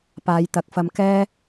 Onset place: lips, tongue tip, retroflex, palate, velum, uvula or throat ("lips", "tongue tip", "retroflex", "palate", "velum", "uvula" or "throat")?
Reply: lips